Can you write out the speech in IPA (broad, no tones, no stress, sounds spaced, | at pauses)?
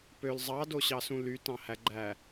p ø l zˤ ɑ d o ɕ ɑ s ũ l y t ɑ̃ h æ ɡ͡ǃ æ